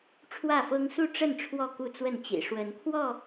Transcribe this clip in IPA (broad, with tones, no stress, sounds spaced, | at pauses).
ʈ͡ʂʰ w ä˥˨ f ɤ˦ ŋ s u˥˨ ʈ͡ʂ ə˥˨ n ʈ͡ʂʰ w ɔ˥˨ k u˥˨ t͡s w ə˥˨ n t͡ɕ ḭ˨˩ ʂ w ə˨˦ n kʰ w ɔ˥˨